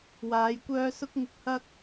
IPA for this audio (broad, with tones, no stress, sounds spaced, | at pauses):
w aː˨˧ j kʷ œː˥ s ʊ˥ k̚ ŋ ʊ˧ k̚ h ɐ˥ k̚